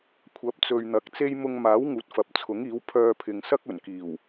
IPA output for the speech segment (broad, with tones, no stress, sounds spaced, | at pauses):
kʷʰ ɐ˨˥ p̚ t͡s ɵ˨ ɥ n̪ ɐ˨˥ k̚ t͡s e˥ j m ʊ˧ ŋ m aː˨˥ w ŋ uː˨ t̚ f ɐ˨ p̚ t͡sʰ ʊ˨˥ ŋ iː˨˥ w pʰ œː˧ pʰ ɪ˨ ŋ s ɐ˥ k̚ ɵ˨˩ n k iː˨˩ w